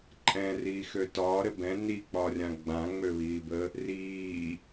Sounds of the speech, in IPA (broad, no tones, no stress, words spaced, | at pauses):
ǃʼɛ̃riːxø tɒːɾɘ bɛ̃ nik͡pɒrʲã ɡ͡bãŋ͡møβiːbə | riː